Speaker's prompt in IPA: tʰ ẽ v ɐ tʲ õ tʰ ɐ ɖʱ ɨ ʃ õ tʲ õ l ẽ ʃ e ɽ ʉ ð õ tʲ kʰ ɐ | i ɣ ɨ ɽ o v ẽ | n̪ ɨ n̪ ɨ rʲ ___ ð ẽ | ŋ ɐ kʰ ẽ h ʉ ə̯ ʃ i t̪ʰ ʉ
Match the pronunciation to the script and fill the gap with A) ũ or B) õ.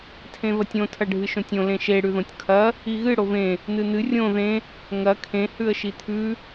B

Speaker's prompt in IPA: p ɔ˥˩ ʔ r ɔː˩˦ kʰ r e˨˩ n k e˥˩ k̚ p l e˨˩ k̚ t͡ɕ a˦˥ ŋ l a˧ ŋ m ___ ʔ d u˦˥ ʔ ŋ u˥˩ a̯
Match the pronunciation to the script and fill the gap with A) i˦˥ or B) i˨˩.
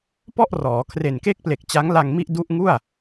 A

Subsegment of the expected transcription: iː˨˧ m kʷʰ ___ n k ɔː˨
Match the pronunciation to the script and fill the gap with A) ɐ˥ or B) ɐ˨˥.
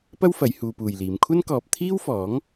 A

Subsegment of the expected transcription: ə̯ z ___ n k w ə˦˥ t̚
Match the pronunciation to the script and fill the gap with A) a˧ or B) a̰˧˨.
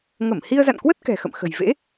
B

